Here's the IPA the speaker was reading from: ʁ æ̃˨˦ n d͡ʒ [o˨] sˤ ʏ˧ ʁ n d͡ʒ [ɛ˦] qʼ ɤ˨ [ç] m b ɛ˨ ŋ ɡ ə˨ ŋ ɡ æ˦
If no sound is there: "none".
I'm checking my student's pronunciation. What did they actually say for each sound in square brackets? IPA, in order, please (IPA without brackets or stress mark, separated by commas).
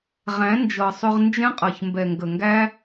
ɤ˨, ɛ̃˦, ç